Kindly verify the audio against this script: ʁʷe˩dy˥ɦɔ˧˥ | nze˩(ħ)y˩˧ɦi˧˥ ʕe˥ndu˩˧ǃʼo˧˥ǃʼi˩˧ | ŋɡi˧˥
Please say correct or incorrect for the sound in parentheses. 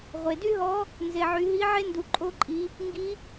incorrect